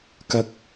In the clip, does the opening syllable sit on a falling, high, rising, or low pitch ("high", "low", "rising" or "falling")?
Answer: low